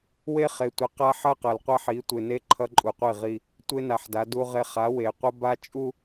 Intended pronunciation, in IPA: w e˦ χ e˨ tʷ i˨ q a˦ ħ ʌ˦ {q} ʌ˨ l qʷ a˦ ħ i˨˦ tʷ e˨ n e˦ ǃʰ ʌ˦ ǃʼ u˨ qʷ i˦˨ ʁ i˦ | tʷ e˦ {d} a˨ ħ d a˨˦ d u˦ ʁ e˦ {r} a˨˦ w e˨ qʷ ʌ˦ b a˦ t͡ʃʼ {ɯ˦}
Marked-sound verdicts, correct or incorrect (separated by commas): correct, incorrect, incorrect, incorrect